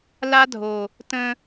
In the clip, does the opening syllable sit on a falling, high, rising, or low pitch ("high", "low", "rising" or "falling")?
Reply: high